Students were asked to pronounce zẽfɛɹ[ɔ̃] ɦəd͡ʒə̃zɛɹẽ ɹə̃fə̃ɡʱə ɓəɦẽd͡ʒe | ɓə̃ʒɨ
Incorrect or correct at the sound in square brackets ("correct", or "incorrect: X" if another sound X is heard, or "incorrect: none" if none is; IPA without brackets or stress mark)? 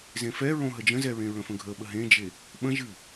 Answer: incorrect: õ